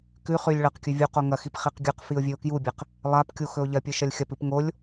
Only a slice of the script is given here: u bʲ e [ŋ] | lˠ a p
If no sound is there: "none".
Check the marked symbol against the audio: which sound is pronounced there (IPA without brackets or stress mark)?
q